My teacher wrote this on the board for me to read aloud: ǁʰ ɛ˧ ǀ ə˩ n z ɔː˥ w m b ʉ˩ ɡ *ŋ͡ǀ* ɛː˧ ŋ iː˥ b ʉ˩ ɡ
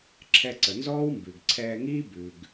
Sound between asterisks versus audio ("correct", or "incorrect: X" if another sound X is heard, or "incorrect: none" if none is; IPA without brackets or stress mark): incorrect: ǀʰ